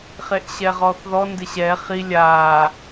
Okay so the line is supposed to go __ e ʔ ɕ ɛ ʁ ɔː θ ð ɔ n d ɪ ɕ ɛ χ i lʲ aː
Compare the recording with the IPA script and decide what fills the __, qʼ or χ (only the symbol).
χ